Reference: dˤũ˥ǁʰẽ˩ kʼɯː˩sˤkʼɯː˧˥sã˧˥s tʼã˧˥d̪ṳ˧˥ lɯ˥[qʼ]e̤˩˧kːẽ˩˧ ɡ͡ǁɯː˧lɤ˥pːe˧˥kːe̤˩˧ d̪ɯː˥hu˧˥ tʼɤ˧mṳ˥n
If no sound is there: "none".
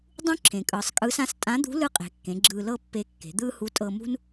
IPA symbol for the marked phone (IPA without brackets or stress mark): qʼ